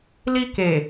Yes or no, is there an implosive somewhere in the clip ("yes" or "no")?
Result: no